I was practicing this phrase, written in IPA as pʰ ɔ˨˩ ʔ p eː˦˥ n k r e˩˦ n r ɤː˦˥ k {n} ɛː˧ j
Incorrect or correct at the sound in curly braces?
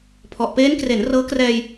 incorrect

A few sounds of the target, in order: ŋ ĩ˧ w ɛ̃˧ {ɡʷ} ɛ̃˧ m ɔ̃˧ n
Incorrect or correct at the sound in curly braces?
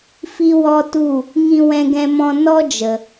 incorrect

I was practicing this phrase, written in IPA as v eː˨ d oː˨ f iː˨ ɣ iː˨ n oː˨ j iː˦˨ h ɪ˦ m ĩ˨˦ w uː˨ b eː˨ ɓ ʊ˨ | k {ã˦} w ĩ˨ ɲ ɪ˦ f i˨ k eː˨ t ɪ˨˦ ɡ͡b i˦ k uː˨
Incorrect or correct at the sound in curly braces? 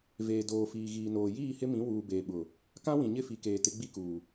correct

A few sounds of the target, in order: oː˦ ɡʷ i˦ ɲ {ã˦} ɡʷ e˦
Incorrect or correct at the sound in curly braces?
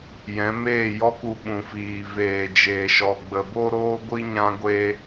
correct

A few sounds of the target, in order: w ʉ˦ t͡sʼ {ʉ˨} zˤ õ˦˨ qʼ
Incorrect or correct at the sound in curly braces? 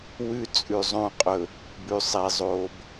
correct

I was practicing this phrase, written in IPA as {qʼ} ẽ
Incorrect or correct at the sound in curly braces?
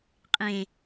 correct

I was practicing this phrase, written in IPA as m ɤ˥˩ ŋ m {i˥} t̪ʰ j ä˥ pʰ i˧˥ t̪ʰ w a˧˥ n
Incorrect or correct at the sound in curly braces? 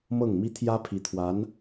correct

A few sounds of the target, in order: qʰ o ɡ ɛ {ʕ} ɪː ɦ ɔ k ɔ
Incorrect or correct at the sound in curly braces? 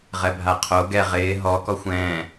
incorrect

